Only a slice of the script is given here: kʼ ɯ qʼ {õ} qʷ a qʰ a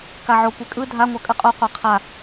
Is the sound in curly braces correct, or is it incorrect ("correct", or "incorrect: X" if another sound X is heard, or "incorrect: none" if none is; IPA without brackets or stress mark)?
incorrect: o